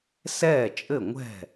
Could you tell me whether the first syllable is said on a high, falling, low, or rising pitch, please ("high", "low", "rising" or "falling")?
falling